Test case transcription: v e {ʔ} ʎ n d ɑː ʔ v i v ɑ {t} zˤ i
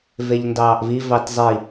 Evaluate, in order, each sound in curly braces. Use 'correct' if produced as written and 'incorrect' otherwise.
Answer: incorrect, correct

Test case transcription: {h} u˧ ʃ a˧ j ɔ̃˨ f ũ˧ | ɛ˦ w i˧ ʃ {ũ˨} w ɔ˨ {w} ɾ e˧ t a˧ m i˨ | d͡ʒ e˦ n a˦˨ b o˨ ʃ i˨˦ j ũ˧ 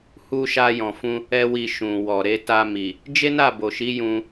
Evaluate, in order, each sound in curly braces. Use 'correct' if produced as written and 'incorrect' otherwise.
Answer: correct, correct, incorrect

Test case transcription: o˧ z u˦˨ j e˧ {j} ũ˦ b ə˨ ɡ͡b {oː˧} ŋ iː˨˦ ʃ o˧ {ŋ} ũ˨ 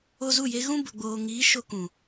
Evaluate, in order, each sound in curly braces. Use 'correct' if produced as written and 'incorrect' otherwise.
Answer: incorrect, incorrect, incorrect

